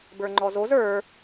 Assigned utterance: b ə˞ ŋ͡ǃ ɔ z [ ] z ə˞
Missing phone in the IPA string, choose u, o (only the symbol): o